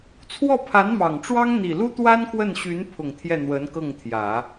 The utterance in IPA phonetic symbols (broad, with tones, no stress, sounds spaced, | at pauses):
t͡sʰ w ɔ˥˩ pʰ a˧˥ n m ɑ˨˩ ŋ ʈ͡ʂ w ɑ˥ ŋ n̪ i˨˩ l u˥ t̪ w a˥ n k w ə˥˩ n ɕ y˧˥ n pʰ ʊ˨˩ ŋ t̪ʰ j ɛ˥˩ n̪ w ə˧˥ n k ɤ˥˩ ŋ t̪ʰ j ä˨˩˦